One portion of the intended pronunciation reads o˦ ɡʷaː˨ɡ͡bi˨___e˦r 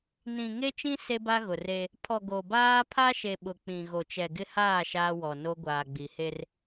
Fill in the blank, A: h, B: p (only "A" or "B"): A